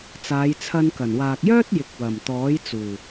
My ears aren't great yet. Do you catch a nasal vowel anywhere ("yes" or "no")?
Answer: no